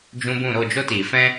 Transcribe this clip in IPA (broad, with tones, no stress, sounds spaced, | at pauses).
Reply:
d͡ʒ ũ˧ b ũ˦˨ ɾ o˦˨ d͡ʒ o˦ t iː˨ f ɛ̃˦